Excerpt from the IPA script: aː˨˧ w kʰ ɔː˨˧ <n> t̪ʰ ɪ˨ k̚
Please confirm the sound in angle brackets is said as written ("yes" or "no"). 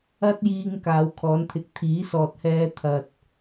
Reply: yes